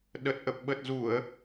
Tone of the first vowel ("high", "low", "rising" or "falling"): low